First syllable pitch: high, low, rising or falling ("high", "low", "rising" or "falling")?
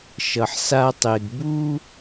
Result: low